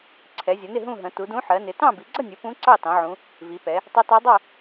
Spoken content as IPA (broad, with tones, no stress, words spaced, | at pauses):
ǀʰɛ˩˧zʲʌ˩˧nɪ˥˨ ɦũ˥˨ɦə̃˩˧ tu˩˧dũ˧˥ ħɜ˩˧nɪ˩˧tɑ̃˥˨ bi˩˧ɡ͡ǀʌ˥˨nʲu˩˧ pũ˧˥ ǀɑ˥˨tɑ̃˩˧ʕũ˩˧ | vi˩˧pɛ˩˧ | tˤɜ˧˥tɜ˧˥ dˤɜ˥˨